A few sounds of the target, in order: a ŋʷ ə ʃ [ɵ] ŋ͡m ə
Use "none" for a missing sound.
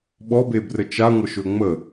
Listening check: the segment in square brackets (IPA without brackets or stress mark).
ɵ